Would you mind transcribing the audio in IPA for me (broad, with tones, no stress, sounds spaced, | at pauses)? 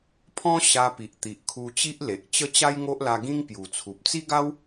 pʰ ɔ̃˦ ɕ a˧ p i˨ ʔ t̪ i˨ ʔ kʰ u˧ t͡ɕ i˦ ʔ l e˨ ʔ t͡ɕ ə˦ t͡ɕ a˦ j ŋ o˦ ʔ l a˧ ɡ ĩ˦ ŋ p j u˨˩ t͡sʰ u˨ p̚ t͡s i˦ ɡ a˦ w